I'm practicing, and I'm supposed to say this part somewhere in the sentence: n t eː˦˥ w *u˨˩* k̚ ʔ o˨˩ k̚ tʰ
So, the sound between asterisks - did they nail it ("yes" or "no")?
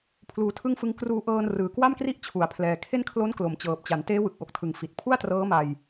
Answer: no